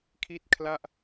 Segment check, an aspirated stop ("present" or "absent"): present